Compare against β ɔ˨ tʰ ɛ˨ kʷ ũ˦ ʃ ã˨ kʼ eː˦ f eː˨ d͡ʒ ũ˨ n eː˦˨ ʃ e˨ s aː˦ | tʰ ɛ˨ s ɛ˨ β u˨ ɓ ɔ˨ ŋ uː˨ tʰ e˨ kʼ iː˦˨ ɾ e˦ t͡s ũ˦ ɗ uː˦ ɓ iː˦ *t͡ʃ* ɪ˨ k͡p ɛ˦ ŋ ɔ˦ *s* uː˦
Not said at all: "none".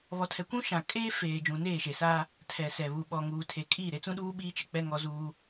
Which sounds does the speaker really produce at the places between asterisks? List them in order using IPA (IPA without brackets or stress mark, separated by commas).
t͡ʃ, z